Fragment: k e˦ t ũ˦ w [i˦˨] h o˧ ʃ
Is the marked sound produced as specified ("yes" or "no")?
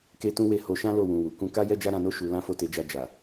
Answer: no